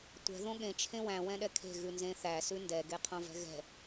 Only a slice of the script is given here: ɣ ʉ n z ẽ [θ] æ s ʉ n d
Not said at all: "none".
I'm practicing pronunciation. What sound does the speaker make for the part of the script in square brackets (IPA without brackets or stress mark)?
θ